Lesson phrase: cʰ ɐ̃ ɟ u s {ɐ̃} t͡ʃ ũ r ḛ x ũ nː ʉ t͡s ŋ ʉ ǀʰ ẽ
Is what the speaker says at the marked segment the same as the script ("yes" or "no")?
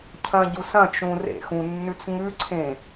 yes